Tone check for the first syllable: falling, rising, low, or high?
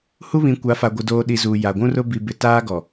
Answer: high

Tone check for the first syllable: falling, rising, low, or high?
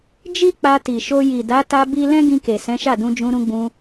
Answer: high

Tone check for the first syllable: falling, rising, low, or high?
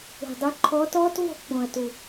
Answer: low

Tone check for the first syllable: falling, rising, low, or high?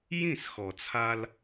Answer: falling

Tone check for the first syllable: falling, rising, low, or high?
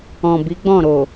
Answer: low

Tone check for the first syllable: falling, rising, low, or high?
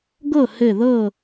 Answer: falling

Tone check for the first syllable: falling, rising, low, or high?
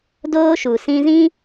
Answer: high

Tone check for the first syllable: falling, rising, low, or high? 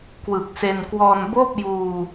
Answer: low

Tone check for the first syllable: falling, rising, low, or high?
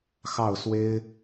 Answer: falling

